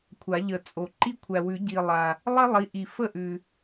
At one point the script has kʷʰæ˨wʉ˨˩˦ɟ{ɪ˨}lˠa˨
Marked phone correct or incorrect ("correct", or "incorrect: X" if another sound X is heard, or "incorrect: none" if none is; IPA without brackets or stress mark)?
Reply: incorrect: i˨